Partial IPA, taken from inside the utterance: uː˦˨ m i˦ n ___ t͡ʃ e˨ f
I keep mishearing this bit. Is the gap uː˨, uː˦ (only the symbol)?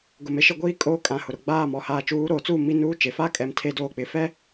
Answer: uː˦